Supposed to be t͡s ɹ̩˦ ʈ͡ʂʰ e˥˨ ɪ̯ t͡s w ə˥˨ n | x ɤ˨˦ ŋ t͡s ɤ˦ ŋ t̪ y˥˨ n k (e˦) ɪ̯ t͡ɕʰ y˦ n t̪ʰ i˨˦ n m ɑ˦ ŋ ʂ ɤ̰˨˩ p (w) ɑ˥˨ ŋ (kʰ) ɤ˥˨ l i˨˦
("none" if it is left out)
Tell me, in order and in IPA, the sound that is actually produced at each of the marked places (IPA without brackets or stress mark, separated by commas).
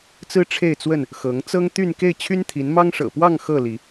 e˥˨, w, x